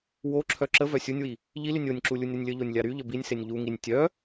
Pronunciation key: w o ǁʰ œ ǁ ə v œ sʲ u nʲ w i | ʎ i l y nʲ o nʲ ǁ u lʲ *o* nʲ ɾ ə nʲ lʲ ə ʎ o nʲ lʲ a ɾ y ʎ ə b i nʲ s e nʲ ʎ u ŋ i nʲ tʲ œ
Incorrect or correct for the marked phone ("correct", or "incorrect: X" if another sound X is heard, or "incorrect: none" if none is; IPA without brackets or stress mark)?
incorrect: u